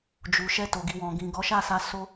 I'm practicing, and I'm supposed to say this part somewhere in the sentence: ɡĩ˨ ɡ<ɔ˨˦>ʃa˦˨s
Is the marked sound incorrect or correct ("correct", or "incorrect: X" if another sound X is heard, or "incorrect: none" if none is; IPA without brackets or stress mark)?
correct